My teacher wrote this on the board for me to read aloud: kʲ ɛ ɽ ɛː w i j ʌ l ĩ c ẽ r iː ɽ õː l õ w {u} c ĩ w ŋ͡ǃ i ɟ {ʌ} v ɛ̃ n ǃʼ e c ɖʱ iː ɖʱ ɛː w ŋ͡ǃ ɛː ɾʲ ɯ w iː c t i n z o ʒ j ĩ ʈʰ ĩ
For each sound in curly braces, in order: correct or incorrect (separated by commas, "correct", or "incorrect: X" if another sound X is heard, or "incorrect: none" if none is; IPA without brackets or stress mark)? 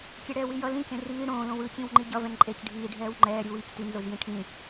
incorrect: ɯ, correct